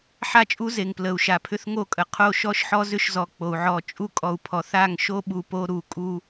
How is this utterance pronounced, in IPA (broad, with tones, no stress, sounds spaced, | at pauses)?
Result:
ħ a˦ t͡ʃʼ u˦ z e˨ ŋ p l ə˨ u̯ ʃ a˨ pʰ ʏ˦ θ ŋ o˦˨ kʼ ə˨ qʰ o˦˨ ʃ ɔ˦ ʃ ħ ɔ˦ z ʏ˦ ʃ z ɔ˨ k͡p o˨ u̯ ʕ ɔ˦˨ t͡ʃʼ u˦ kʼ ɔ˨ u̯ pʰ ɔ˨ θ a˦˨ ŋ ʃ o˦ ɓ u˨ p o˦ ɾ u˨ kʼ u˦